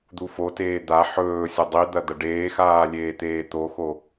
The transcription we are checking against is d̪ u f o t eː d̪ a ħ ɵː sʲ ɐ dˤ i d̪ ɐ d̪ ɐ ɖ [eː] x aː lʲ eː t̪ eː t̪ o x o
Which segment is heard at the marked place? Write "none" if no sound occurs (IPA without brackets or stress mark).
eː